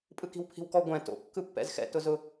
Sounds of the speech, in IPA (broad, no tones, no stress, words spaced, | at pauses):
pʼɯki̤wpʰi̤wkɔ ɡʷɛ̃ to̰ kːɯpːɛ̰zxɛ̰ tʊzʊ